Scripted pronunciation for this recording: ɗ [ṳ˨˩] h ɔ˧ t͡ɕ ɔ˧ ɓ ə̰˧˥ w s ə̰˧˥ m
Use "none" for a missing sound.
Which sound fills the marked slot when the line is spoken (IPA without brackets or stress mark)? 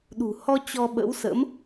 ṳ˨˩